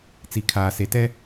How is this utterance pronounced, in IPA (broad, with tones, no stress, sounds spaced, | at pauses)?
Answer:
t͡s i˨ kʰ aː˨ s e˨ t ɛ˦